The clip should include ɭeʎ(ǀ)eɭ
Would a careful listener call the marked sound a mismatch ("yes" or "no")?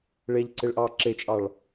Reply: no